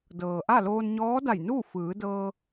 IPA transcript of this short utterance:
dɤː˩ʔa˥˨loː˧n ɲɔː˧˥da˧˩jnuː˥˨ fɯː˩˧dɤː˧

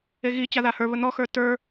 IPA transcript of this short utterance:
eɣit͡ɕa ðahə˞βə n̪ɔxə˞ tə˞

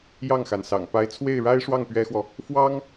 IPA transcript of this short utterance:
jɑ˥˩ŋxa˩nsɑ̰˨˩ŋ pa˧˥ɪ̯t͡sʰwe˥˩ɪ̯ɻa˥ɪ̯ʂwɑ˥˩ŋ pɥɛ˥xwɔ˨ | fwɑ˥ŋ

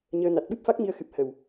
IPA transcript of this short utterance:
ɲəː˧ na˨˩t̚ɓɨ˦˥p̚fa˦˥k̚ mi˧ə̯xɨ˨˩p̚ hə˨˩w

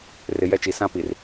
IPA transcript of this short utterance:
rɪ˨ jɛ˦t͡ʃi˨ sã˦pi˨r

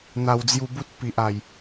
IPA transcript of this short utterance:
n̪a˨˩w d͡zju˧bu˦t̚ pi˨ʔa˨˩j

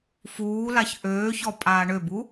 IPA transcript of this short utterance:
fuːlaç ʔøːçɔpʼaː ɳøbu

